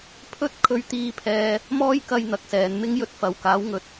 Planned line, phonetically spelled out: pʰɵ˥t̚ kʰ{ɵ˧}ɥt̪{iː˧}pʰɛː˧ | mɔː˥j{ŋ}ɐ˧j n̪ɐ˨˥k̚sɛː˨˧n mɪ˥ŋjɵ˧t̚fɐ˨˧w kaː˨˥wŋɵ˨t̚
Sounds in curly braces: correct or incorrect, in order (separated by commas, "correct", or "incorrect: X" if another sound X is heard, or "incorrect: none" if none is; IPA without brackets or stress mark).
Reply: correct, correct, incorrect: k